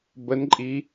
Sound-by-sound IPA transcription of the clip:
bənǃʼi

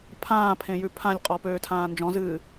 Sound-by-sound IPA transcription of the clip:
pʰãːpʰẽjʉ pʰãlʲqʼɔpøːtʰãː nd͡ʒɔ̃zɨː

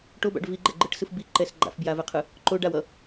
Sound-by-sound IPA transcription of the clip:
ʈoba̰ɖ viɡ͡ǃɛɡ͡ǃɯʈsɯf biǃɛs ɡ͡ǃa̰fbjavɛqʰɯ | ǃoɖawʌ

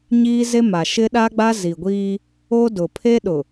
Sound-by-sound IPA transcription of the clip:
ɲiː˦ze˦ma˨ ʃɪ˦ɗa˦ɡ͡ba˦ zi˨ɡʷiː˦ | o˦dʊ˨ pʰe˦ɗʊ˨

